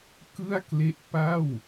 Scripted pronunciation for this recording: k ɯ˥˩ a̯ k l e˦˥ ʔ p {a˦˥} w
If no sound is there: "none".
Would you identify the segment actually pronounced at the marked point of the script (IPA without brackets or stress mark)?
a˥˩